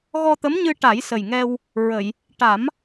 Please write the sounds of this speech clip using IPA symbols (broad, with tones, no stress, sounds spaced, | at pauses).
ɣ ɔ˧ t̪ ə˧˥ m ɲ ɨ˧ ʈ a˨˩˦ j s ə˨˩ j ŋ ɛ˧ w | ɹ ə˨˩˨ j | ʈ a˨˩˦ m